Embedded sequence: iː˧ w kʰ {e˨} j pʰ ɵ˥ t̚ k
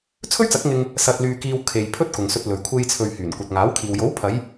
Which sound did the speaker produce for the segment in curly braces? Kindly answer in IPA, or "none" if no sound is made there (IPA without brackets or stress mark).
e˨